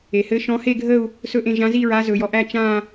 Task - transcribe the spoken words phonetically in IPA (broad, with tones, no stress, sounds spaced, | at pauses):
e˩ h ɘ˨˦ ʃ ɔ̃˨˦ h e˦˨ ɡʱ ə˦˨ u̯ | s ɵ˦˨ ʔ ẽ˦˨ ʒ ã˨˦ z i˦˨ ɹ a˨˦ z ɵ˩ j ɔ˩ ʔ æ˦˨ t͡ʃ ã˦˨